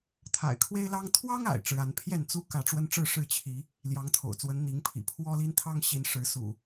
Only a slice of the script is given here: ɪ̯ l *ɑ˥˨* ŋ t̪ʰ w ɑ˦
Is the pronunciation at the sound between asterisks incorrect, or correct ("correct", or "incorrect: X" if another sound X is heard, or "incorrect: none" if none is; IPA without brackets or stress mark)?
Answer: incorrect: ɑ˦